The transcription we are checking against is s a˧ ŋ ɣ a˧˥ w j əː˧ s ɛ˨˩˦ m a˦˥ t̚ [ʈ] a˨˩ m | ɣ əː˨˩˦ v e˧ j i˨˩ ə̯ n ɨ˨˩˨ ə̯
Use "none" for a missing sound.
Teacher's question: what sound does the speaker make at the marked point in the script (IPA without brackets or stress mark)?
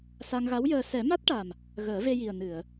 ʈ